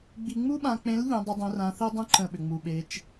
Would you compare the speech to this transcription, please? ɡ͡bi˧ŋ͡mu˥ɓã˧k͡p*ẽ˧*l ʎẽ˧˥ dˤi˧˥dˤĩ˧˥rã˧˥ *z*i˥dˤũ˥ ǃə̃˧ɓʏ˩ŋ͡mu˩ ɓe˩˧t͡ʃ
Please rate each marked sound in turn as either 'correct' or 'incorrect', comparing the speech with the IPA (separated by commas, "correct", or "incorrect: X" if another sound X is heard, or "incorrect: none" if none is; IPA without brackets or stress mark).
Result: incorrect: ẽ˧˥, incorrect: θ